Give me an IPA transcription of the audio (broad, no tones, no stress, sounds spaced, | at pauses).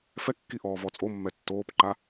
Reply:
f ɛ kː i ʔ ɔː v ɔ t͡sʼ o mː ɛ tː oː p ǃ a